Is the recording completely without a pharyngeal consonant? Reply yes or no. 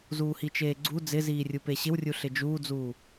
yes